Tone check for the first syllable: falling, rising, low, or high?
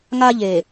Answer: high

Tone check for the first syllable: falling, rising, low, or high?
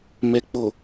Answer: low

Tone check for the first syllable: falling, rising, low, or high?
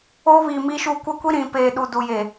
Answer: high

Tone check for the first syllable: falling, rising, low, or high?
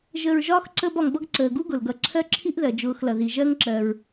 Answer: low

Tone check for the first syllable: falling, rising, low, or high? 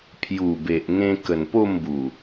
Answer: low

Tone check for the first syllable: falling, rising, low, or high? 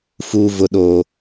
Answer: low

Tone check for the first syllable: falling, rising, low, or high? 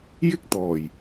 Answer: high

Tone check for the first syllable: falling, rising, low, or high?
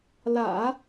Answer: low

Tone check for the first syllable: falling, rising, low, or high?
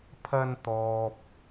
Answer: low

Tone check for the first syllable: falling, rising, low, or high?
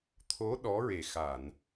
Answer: rising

